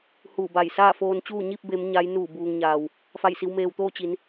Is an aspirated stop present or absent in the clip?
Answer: absent